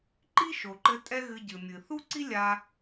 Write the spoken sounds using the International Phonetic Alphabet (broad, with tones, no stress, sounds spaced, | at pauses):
ǃ i˥ ʃ o˩ ǃ ɘ˧ tʼ ɛ˥ ɣ ɨ˧ ɟ ɨ˩ mʲ ɨ˩ θ u˥ ǀ i˥ lʲ a˧